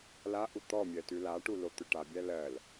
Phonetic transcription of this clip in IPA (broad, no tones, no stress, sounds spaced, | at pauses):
l a ʔ u t̪ ɔ mʲ ɜ t ʉ l a ʈ u l o t̪ ʏ ʈ a bʲ æ l ɜ l